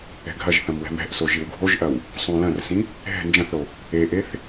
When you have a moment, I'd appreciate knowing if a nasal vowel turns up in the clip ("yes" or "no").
yes